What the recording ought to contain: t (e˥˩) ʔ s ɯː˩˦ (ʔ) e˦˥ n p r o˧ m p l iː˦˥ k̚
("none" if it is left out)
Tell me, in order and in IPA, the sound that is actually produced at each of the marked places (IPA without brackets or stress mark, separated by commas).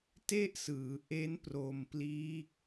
e˥˩, ʔ